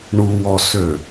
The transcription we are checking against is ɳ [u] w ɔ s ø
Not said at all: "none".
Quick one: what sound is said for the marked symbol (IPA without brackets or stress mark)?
u